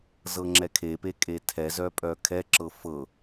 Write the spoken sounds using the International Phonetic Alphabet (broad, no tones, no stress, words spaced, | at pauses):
zɤŋ͡ǁɛkʰepe kʼetʰɛ zœpʼœkʰɛǁɤ fɤ